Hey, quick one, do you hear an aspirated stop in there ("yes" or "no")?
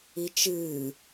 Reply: no